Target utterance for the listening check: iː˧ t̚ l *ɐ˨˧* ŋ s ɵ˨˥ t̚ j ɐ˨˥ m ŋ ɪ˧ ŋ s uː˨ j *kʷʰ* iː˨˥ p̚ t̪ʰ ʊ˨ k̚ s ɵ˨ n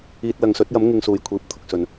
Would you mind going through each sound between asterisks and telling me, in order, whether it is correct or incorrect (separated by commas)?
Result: correct, correct